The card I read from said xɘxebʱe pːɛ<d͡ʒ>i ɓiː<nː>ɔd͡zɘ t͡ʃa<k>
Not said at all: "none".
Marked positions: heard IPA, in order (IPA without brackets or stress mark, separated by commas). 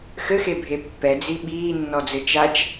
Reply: d͡z, nː, t͡ʃ